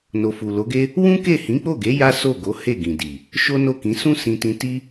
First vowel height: mid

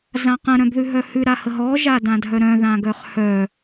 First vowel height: low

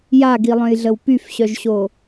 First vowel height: low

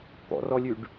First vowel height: mid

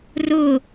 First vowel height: high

